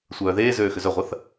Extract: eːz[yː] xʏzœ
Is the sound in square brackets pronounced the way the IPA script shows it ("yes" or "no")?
no